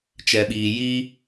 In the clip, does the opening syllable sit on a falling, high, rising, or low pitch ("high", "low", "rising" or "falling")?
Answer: low